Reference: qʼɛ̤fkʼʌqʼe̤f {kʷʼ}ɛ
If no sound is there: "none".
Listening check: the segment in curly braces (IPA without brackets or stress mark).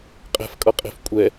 kʷʼ